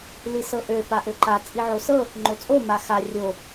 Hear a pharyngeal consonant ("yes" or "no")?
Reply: yes